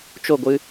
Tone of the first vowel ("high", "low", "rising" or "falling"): falling